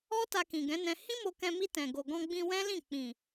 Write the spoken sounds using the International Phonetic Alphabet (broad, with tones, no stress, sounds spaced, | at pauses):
ɔ˦ t a˧ k ĩ˨ ɡ ɛ̃˨˦ n ɛ̃˧ h ĩ˦ m o˧ k ɛ̃˧ m i˧ t ɛ̃˨ ɡ o˨ ɡ ɔ̃˧ ɡ͡b ĩ˧ w ɛ̃˦ l ĩ˦˨ k͡p ĩ˨